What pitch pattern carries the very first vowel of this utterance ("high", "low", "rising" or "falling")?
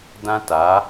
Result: high